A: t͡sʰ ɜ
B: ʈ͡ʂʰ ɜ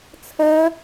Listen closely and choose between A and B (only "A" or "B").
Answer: A